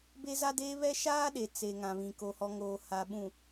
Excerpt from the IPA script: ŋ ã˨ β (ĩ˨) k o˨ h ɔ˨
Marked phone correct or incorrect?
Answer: correct